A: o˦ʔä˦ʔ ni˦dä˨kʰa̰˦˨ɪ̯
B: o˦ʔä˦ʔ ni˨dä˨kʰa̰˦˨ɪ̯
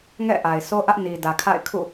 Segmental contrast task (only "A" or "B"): B